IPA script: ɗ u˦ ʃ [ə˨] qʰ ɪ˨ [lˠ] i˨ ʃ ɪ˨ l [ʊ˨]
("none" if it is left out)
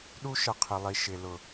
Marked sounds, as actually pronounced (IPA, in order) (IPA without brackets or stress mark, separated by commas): ə˨, lˠ, ʊ˨